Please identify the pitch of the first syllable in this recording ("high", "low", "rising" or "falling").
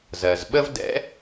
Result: low